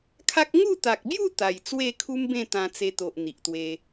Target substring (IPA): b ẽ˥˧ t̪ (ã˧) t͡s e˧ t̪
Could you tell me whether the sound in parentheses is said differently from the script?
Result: no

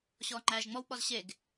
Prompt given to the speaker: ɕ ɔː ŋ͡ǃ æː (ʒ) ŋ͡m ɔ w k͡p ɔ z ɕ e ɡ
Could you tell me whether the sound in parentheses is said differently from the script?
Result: no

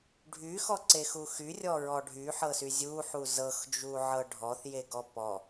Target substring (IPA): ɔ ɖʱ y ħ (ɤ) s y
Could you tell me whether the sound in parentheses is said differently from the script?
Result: no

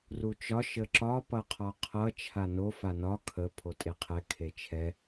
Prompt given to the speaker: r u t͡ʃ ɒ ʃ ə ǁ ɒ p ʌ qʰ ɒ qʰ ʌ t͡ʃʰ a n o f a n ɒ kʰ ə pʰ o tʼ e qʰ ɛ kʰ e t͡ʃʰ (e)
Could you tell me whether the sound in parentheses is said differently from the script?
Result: yes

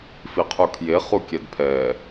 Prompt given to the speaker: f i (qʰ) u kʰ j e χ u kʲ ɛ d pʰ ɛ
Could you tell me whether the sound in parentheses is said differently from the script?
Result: no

